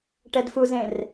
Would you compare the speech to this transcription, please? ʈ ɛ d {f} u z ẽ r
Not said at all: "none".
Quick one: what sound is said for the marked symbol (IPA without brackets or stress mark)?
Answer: f